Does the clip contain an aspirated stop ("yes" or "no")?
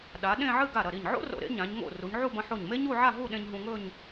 no